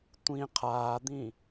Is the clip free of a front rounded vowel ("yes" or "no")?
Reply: yes